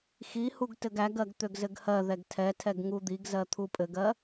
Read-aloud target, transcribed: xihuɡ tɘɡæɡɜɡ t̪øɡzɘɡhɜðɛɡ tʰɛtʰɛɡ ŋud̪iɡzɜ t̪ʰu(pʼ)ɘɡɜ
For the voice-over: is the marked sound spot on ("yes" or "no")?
yes